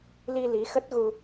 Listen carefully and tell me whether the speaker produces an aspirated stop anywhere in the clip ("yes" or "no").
no